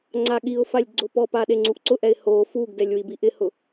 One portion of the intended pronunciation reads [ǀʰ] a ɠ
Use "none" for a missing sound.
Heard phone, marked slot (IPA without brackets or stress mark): ŋ͡ǀ